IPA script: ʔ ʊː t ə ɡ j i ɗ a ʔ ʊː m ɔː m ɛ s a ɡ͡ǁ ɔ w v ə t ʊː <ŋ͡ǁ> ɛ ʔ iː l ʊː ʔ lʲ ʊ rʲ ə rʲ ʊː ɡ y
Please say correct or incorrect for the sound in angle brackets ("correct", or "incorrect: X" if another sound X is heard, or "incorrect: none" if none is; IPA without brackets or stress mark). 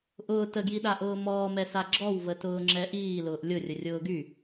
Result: correct